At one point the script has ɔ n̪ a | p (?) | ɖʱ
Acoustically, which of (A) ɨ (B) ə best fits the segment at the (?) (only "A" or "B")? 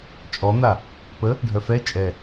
B